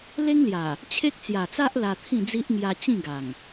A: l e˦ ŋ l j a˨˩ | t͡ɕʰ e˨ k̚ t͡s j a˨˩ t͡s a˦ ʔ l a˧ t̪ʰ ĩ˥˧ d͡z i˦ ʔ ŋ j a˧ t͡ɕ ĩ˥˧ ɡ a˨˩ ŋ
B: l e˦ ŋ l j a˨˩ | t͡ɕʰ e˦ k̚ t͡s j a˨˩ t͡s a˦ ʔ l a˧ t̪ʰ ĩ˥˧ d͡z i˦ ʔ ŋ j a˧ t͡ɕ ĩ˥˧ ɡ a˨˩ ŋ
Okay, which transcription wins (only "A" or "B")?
B